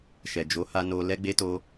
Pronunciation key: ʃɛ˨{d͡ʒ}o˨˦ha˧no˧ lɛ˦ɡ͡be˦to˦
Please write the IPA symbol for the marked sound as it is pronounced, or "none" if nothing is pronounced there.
d͡ʒ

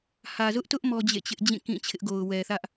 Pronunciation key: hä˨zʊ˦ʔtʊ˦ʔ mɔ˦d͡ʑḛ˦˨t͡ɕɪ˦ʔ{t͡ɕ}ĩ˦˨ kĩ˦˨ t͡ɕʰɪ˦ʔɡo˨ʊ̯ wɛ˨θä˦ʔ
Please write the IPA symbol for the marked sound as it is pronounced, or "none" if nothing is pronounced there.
d͡ʑ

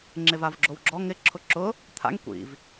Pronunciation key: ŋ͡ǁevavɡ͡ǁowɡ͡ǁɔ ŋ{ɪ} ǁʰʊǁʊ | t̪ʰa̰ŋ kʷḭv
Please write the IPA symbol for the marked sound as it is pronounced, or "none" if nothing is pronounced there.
ɪ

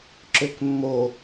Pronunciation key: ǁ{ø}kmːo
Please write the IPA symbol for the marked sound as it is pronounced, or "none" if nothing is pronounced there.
ø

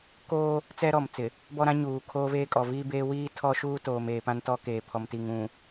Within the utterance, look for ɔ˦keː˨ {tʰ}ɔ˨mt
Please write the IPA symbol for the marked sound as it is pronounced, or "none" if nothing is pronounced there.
pʰ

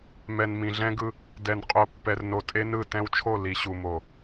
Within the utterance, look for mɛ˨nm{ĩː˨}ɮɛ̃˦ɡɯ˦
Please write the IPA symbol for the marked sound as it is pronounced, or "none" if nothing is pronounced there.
ĩ˨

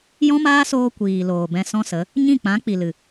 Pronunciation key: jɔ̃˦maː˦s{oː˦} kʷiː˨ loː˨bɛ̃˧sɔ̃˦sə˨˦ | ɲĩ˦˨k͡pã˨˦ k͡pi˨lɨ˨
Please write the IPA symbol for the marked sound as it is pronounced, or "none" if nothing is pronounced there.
oː˧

